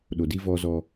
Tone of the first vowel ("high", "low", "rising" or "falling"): low